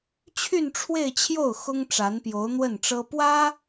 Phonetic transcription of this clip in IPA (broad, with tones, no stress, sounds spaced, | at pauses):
t͡ɕʰ y˥˧ n ʈ͡ʂʰ w e˥˧ ɪ̯ t͡ɕʰ j o˥˩ ʊ̯ x ʊ˥ ŋ ʈ͡ʂ a˧˥ n p j o˧˥ ʊ̯ n̪ w ə˥˩ n ʈ͡ʂ ɤ˥ p w ä˥